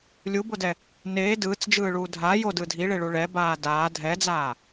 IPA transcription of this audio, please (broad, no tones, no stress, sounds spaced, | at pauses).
lʲ u b o d ɛ | n eː d ɯː t͡s d͡ʒ ɯː ɭ uː dʱ a j o d ɯ dʱ i ɭ e ɭ u ɭ ɛ b aː d aː dʱ ɛ d͡z aː